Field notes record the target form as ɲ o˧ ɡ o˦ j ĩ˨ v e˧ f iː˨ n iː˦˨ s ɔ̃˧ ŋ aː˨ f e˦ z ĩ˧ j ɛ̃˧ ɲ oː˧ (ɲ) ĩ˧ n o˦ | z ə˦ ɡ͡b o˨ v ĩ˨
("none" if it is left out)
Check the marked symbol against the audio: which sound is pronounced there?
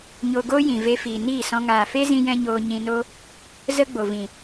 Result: ɲ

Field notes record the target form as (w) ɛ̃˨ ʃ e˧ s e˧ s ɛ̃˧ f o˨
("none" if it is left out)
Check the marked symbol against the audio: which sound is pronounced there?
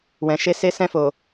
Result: w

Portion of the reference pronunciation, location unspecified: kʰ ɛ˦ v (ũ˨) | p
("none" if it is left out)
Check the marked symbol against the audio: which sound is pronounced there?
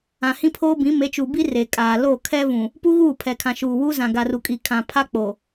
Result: ũ˨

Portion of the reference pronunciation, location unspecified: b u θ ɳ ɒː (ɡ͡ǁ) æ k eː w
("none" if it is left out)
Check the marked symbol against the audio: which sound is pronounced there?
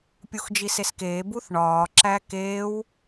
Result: ǁ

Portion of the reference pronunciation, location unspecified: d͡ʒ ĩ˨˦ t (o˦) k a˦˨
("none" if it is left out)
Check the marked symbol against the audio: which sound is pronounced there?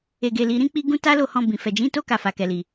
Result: o˦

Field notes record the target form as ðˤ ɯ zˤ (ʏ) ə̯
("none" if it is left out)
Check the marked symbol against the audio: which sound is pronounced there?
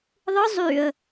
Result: y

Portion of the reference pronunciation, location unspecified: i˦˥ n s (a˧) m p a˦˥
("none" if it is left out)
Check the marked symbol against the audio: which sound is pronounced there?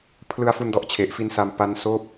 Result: a˧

